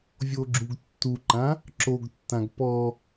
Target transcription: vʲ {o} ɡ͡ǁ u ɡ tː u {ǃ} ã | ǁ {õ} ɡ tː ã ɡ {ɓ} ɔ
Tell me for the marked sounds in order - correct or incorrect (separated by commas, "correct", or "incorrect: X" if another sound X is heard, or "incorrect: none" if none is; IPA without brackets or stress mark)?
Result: correct, correct, incorrect: o, incorrect: p